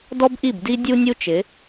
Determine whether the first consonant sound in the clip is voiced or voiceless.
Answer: voiced